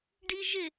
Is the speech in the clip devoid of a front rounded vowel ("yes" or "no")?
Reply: yes